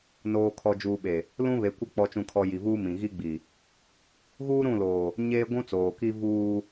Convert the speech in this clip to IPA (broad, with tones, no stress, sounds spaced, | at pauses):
n oː˨ kʰ ɔ˨ d͡ʒ uː˨ ɓ e˨ | l ũ˦ β e˨˦ kʷ ɛ˦ k͡p ɔ˨ t͡ʃ ũ˨ kʰ ɔ˨ j i˨ v uː˦ m ĩ˨ ɣ i˦ ɡ͡b i˨ | ɣ uː˦ ɾ ũ˦˨ l oː˨ | ɲ eː˦ ɡʷ ũ˦ t͡s oː˨ k i˦ v uː˦